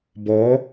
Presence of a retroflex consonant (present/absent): absent